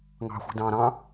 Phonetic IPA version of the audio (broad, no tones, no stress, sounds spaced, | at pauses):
ŋ ɑ̤ xʷ i̤ d ɑ̃ː ɾ ɑ̃